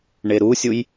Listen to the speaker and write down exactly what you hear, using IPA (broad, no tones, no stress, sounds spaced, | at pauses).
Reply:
ɳ e ɾ u sʲ u j